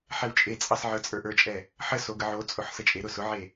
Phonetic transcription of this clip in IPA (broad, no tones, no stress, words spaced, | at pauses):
ħɛwt͡ʃʼet͡sʼɑs ʕə˞t͡sʼə˞ʔə˞t͡ʃʼɛ | ħə soɡəʕot͡sʼʊħ sət͡ʃʼeɾʊ sʊʕe